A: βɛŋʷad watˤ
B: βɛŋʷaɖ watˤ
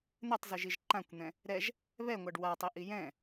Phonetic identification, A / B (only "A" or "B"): B